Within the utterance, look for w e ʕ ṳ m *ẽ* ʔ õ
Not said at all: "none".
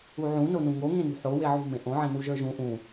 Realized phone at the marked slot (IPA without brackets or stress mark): ẽ